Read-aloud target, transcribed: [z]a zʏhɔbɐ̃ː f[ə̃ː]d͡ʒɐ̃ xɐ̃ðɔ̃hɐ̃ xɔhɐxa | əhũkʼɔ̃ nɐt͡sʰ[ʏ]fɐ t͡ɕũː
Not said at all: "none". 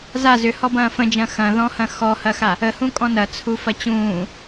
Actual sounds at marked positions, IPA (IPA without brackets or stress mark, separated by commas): z, ə̃, u